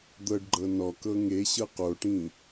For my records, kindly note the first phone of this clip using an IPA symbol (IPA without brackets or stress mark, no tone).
d̪